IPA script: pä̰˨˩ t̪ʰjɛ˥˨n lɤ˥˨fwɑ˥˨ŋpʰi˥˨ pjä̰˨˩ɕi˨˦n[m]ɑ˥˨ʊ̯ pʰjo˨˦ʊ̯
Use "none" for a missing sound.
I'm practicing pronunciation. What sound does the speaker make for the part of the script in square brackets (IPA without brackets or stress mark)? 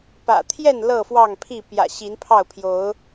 pʰ